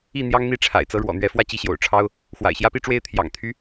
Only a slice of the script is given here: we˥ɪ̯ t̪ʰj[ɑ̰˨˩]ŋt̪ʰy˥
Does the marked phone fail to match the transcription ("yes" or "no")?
no